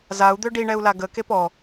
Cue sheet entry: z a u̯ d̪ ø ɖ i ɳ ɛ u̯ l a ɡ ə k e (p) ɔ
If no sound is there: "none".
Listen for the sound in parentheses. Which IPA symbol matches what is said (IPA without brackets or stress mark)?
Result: p